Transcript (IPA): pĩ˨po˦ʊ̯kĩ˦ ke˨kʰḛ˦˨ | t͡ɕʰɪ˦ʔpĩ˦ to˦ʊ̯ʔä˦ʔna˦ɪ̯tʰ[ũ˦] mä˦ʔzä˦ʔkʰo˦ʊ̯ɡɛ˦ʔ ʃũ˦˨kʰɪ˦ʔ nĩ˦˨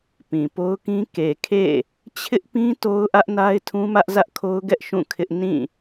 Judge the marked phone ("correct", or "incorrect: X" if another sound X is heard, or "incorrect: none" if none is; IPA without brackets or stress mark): correct